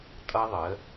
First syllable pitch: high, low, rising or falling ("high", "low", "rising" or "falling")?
high